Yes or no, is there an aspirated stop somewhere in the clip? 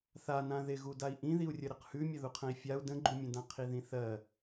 yes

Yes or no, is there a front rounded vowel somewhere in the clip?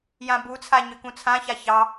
yes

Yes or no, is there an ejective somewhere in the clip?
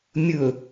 no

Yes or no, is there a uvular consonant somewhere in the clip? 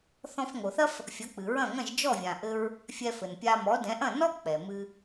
no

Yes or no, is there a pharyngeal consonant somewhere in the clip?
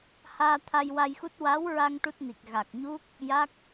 no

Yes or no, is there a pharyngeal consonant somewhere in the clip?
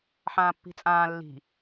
yes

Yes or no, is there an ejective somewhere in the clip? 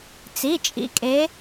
yes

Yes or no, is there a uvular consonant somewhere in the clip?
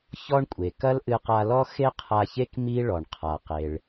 yes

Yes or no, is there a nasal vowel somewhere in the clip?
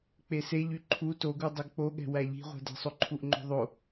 no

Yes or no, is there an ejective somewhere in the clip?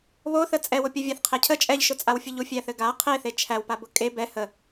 yes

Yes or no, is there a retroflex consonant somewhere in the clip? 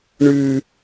yes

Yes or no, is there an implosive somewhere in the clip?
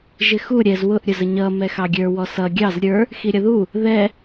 no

